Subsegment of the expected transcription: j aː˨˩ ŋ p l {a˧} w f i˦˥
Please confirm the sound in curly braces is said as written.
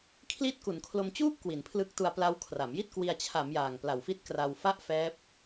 no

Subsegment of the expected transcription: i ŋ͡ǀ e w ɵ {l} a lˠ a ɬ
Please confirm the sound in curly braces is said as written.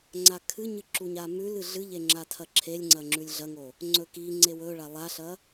no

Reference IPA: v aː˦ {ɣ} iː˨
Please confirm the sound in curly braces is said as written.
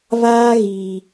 yes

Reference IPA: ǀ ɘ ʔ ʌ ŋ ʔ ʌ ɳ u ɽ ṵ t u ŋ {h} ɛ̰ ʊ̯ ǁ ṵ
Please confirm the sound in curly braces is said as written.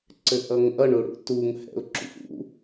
yes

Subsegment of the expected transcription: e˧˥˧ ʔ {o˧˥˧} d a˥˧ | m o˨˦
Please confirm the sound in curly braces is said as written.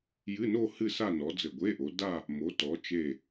no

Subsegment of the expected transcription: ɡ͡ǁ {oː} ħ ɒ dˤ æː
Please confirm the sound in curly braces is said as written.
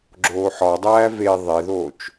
yes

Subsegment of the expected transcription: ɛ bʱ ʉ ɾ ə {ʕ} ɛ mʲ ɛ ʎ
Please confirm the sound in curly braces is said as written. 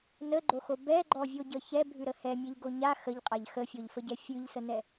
no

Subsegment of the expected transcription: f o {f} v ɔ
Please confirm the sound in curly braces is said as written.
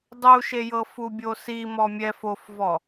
yes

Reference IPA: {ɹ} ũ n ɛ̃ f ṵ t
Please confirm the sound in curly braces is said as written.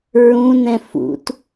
yes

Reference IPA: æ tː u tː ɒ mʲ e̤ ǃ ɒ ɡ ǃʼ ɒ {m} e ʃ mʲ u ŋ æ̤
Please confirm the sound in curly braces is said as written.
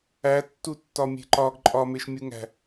yes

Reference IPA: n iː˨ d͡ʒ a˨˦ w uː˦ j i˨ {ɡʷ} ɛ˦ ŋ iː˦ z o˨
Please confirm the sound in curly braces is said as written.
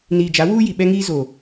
no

